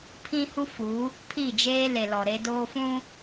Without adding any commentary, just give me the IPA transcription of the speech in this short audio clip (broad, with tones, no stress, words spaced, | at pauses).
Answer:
pʰĩ˦hu˦fu˨˦ | pʰi˦˨d͡ʒeː˦le˨ lɔ˨ɾe˦doː˦fũ˦